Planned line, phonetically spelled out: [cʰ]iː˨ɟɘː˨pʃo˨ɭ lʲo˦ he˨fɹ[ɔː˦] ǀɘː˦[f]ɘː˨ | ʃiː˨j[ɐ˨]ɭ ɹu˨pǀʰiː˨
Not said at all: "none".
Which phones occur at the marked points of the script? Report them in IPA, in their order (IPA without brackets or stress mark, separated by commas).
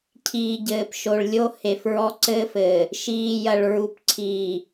cʰ, ɔ˦, f, ɐ˨